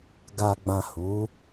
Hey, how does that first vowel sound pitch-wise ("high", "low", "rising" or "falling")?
low